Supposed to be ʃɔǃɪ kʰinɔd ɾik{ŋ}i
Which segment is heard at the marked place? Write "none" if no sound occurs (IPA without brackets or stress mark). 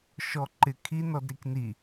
n